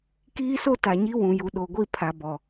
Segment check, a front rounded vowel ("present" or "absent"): absent